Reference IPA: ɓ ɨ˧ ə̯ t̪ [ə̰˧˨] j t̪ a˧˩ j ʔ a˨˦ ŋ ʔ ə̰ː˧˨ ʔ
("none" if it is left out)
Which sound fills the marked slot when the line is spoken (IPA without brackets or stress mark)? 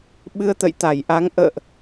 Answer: ə̰˧˨